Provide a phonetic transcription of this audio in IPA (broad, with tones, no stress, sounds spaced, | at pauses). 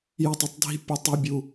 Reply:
j ə˦ tˤ ə˦ tˤ dʱ i̤˦ pʲ ɘ˦ tˤ i˦ bʲ u˦